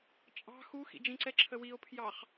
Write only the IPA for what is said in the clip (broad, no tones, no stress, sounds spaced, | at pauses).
t͡ʃʼ ɑ̤ x u x ḭ d͡ʒ ĩ ǀ ɛ ǁʰ ə w i o̯ pʰ j ɑ χ